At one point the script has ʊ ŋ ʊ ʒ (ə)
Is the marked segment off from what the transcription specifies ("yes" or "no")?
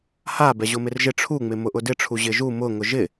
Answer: yes